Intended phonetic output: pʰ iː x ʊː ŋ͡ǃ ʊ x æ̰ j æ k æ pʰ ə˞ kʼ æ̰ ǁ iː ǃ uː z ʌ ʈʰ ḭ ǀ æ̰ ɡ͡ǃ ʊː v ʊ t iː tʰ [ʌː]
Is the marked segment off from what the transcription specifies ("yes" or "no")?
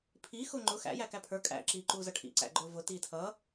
no